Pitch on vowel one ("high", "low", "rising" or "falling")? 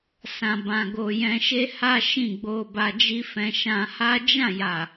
low